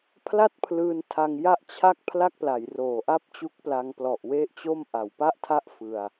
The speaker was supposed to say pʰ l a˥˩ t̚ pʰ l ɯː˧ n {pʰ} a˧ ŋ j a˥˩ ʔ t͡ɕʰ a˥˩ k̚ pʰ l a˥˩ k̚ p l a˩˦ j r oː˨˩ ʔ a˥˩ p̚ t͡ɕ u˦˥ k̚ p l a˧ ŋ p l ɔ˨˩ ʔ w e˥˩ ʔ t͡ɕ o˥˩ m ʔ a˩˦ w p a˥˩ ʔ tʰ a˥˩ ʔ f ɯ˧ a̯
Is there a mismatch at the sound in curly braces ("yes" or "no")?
yes